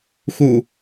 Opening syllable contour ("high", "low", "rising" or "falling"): low